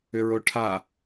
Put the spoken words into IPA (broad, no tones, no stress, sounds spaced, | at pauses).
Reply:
ʏ ɹ o ʈʰ a